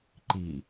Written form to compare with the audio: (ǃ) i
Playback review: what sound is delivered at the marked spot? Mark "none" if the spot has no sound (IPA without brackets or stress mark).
ǃ